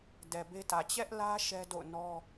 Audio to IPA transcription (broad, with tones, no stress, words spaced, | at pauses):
dɛ˨be˦tä˨ t͡ɕɛ˦ʔlä˦ ʃɛ˦do̰˦˨ʊ̯ nɔ˦